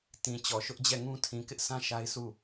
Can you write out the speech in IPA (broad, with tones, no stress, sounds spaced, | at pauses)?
t ĩ˨ t͡ɕ ɔ˨ ʃ ʊ˦ ʔ d͡ʑ ɛ˦˨ ŋ ũ˦ tʰ ĩ˨ k ɪ˦ ʔ sʰ ã˦ ʃ a˦ ɪ̯ s u˦˨